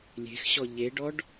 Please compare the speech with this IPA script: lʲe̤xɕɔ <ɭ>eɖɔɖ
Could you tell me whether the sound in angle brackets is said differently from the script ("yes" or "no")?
yes